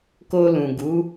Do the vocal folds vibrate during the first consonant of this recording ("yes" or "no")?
no